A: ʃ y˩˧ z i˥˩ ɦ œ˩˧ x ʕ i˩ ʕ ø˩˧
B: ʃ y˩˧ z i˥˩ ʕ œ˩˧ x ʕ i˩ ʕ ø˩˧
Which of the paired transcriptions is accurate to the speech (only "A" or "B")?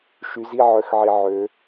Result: B